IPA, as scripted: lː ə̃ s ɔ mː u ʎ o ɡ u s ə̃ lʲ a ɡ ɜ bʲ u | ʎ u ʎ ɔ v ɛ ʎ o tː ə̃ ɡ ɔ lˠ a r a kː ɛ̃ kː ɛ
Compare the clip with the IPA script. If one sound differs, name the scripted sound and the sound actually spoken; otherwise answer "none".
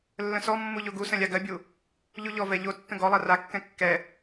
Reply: none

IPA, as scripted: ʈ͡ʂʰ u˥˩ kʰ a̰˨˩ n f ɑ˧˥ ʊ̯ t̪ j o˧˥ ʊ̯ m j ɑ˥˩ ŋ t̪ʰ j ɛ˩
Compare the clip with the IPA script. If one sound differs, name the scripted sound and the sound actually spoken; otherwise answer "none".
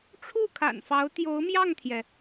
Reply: none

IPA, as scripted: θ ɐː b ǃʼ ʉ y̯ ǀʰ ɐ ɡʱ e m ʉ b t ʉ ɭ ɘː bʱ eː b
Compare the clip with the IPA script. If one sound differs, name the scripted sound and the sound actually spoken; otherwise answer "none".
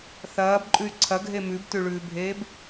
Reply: ɘː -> ʉː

